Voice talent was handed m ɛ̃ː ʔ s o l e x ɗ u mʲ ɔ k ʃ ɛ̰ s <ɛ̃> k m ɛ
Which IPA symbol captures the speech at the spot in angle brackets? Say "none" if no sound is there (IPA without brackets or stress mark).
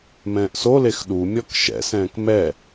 ɛ̃ː